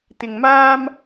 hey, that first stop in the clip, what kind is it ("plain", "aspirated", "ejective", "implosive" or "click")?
plain